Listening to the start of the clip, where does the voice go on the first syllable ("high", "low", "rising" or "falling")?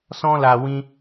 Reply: high